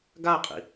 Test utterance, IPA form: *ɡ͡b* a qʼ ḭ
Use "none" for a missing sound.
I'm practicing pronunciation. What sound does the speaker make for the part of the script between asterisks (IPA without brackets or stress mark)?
ɡ